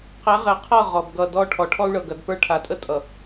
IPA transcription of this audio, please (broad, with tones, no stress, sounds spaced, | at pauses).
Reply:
q ɛ˨˦ ʁ ɛ˨ qʰ ɤ˦˨ ʁ ɔ˨ b ɡ ʌ˦˨ d ɔ˦ ʈʰ ɔ˨ ʈʰ ɔ˦ u̯ ɭ ɤ˨ ɡ ɐ˨ d p ə˞˦ ʈʰ a˨ tʼ ə˦ tʼ ʌ˨